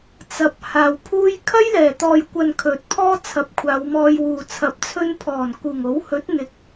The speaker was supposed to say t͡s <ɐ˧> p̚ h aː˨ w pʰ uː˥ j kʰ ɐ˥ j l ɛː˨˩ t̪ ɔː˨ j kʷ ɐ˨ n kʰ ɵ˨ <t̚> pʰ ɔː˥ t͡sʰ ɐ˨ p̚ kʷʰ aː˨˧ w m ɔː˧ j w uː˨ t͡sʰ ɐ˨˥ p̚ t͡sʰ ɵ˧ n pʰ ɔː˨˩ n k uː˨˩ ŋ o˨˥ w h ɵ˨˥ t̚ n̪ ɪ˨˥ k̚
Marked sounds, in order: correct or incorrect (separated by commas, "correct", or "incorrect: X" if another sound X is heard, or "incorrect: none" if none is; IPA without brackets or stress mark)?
incorrect: ɐ˨, correct